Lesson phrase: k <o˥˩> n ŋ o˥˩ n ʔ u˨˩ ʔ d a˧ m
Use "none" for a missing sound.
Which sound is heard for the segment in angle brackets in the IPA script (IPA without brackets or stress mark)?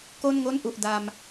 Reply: o˥˩